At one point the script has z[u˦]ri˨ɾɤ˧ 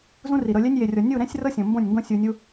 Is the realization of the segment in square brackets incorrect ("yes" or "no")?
yes